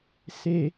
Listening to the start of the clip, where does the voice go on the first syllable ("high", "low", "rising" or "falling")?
low